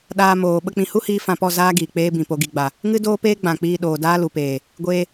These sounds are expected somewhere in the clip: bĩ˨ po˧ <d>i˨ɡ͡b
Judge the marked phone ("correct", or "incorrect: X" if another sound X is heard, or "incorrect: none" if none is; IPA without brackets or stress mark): incorrect: ɡ